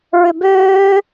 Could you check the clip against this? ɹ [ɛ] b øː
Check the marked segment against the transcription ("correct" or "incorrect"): incorrect